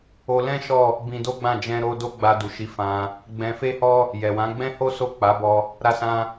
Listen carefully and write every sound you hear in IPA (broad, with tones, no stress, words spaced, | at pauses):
o˧lɛ̃˦ ʃɔ˦˨ | bĩ˧do˦ɡ͡bã˦˨ d͡ʒɛ̃˧ ɾo˧ do˦ɡ͡ba˧du˨ʃi˨˦ fã˧ | ɡ͡bɛ̃˧fe˦hɔ˦ | jɛ˨wã˨˦ ɡ͡bɛ̃˦ho˦ so˦˨k͡pa˨˦bɔ˧ | ɾa˧sã˧